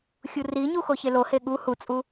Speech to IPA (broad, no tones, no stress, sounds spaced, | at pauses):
xʲ u r i ɲ u x o ç e l o h e ɠ u h u t͡sʼ u